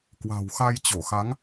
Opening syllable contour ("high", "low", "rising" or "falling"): low